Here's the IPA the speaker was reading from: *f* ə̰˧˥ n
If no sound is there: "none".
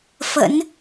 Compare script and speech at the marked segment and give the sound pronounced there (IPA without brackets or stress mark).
f